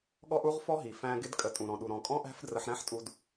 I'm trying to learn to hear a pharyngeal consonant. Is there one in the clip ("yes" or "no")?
yes